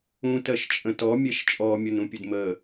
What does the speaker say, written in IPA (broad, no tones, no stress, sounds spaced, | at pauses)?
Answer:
ũ t ɜ ʃ t͡ʃʼ ə̃ t ɔ mʲ ɛ ʃ t͡ʃʼ ɔ mʲ ʌ n ũ pʲ ʊ d m ə